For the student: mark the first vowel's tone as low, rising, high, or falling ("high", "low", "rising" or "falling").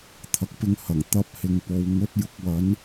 low